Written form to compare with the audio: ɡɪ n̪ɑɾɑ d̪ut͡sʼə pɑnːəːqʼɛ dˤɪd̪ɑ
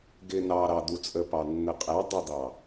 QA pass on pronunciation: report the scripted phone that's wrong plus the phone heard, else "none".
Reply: əː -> ə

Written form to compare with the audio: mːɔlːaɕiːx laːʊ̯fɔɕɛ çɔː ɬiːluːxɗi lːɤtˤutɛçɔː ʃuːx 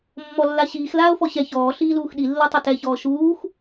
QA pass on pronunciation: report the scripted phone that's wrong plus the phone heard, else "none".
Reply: none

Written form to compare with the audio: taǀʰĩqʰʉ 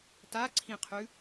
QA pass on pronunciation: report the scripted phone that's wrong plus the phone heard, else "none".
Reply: none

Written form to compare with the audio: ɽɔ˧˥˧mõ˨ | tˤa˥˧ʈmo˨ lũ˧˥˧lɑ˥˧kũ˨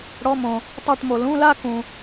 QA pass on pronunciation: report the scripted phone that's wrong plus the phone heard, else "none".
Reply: ɑ˥˧ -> a˥˧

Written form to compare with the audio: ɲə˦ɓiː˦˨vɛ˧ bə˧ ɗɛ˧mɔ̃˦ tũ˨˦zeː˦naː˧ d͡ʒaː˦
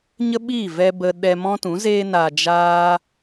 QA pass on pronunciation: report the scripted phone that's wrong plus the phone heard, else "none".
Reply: none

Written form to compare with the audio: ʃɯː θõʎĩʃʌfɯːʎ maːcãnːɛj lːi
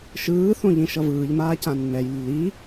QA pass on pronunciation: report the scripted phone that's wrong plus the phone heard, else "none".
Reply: f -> v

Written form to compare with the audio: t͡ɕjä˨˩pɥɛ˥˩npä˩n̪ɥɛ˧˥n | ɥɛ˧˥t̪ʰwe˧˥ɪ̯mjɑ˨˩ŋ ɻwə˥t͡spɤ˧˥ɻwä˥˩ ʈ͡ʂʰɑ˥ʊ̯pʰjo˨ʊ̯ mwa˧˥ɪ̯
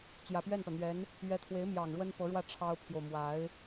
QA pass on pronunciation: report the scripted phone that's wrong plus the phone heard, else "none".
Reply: t͡s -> n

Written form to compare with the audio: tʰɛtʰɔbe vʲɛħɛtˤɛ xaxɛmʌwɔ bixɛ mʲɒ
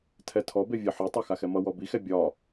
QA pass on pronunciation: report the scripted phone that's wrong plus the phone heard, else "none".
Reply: mʲ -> bʲ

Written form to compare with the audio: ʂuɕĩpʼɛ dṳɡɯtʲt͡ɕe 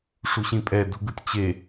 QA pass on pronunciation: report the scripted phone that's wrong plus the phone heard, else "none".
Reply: none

